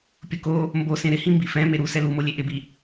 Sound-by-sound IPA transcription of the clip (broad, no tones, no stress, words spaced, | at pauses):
pʲʊko | mbosẽ ɾɪhĩ mbifɛ̃ meɾu sɛlumolʲe ʔɪbi